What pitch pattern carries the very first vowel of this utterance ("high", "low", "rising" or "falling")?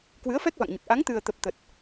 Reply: rising